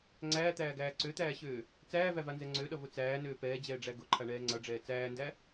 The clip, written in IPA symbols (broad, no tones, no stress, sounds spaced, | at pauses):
ŋ͡ǀ æː t̪ æː ɡ æː ǀ ø t̪ æː ɕ øː | t͡s æː v æ v a n z ɛ ŋ͡ǀ ø ɗ ʌ v ʊ t͡s æː n øː p ɛː d͡ʑ ɛː ɖ͡ʐ æ ɡ ʊ ǃʰ a ɳ ɛː ŋ͡ǀ ʌ ɖ͡ʐ ɛː t͡s æː n d æ